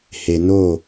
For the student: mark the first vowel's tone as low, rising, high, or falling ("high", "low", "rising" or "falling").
low